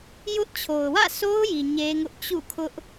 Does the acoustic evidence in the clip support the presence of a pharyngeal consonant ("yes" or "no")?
no